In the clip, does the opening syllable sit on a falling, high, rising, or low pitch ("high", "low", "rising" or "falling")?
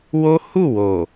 high